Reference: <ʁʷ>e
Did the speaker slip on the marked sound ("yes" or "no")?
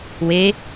yes